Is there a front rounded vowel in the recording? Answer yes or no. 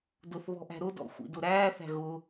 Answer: no